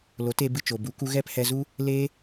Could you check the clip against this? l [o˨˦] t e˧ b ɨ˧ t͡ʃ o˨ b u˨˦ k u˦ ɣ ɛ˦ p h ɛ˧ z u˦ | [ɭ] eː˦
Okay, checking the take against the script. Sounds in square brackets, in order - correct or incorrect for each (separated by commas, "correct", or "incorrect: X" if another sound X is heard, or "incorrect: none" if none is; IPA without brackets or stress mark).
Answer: correct, incorrect: l